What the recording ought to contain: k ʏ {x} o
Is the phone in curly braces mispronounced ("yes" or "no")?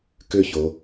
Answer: yes